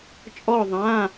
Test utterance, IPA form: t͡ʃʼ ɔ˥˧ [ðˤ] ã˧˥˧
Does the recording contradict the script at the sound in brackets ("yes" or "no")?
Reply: no